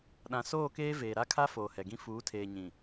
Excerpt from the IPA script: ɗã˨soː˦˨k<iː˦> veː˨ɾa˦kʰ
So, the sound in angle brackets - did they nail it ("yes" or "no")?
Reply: no